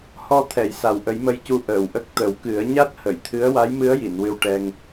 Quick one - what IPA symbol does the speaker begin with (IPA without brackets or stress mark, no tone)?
h